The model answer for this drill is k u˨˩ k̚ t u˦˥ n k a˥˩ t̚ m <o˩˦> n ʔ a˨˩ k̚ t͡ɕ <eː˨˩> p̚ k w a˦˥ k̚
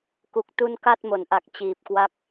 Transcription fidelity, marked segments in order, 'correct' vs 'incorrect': correct, incorrect: iː˨˩

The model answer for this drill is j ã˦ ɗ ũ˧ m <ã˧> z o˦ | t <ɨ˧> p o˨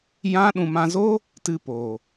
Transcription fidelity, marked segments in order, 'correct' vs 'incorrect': correct, correct

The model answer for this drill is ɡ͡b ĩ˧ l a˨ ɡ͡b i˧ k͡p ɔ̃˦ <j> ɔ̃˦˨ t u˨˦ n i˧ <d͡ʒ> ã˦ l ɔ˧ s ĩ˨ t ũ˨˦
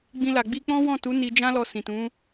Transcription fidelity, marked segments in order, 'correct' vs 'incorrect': incorrect: w, correct

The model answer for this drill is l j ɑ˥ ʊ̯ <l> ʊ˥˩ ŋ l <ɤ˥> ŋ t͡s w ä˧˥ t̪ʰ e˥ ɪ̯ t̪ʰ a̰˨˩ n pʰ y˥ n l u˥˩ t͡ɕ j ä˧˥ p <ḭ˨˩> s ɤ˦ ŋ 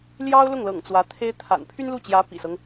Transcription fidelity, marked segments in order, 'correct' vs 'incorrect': correct, incorrect: ɤ̰˨˩, correct

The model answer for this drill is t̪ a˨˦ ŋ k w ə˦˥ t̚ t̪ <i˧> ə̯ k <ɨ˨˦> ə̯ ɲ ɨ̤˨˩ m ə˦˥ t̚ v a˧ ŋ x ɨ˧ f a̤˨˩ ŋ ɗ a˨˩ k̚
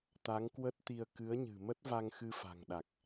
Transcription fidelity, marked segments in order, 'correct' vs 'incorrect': correct, correct

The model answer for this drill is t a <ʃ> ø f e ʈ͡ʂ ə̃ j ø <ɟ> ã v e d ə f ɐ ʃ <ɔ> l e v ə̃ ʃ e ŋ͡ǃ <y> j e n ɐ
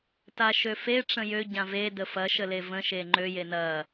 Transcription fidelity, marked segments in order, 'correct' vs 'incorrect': correct, correct, incorrect: ə, incorrect: ø

